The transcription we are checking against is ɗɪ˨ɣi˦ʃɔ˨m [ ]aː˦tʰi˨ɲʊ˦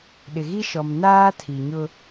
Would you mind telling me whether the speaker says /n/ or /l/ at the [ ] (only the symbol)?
n